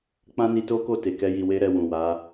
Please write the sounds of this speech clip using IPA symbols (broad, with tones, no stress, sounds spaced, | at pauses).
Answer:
k͡p ã˦ n i˧ t o˦ k o˦˨ t e˨ k ɛ˧ j i˨ w e˧ ɾ ɛ˨ w ũ˨ w a˨˦